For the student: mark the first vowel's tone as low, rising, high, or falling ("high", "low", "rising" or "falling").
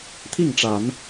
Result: falling